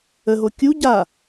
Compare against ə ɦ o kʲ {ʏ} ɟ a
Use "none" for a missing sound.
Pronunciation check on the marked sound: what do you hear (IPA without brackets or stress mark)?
u